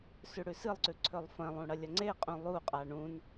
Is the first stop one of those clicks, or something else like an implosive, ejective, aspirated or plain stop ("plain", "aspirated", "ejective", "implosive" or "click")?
click